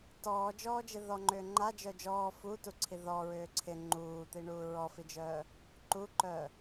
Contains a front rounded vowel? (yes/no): yes